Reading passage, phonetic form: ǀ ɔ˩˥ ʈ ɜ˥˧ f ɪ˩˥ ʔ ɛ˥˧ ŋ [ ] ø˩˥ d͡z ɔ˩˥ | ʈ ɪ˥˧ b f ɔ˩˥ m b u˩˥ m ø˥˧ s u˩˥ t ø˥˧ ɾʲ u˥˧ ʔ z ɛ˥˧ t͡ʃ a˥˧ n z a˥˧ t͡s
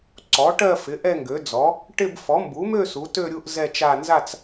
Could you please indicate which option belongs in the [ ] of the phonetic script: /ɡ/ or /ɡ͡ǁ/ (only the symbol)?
ɡ